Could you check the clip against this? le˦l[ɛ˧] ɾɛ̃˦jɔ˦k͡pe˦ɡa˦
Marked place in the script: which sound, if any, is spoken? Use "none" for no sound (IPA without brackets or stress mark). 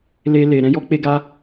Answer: e˧